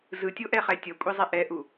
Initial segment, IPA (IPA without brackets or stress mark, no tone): z